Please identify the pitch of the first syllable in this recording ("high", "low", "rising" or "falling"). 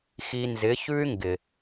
low